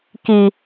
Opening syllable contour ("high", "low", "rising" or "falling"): low